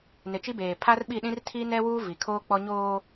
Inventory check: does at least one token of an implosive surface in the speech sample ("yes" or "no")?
yes